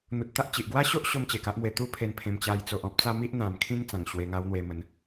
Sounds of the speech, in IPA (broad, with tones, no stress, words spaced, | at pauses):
n̪u˨t̚t̪a˦ʔ t͡ɕi˨ʔ ɡwa˦ɕo˦ʔ ɕo˦mt͡ɕe˨˩ka˦ʔmwe˧ t̪u˦pʰe˧npʰẽ˧m t͡ɕa˧j t͡so˨ʔɔ̃˦p̚ t͡sa˦mi˦ʔ n̪ã˨˩m kʰĩ˦ŋ t͡sã˨˩ŋɕwe˧ŋa˧wn̪we˧ mə˨˦n